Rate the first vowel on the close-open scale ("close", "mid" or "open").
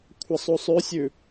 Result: open